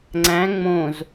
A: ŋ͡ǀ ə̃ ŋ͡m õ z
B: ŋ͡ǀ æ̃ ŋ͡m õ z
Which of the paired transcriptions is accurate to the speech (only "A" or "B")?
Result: B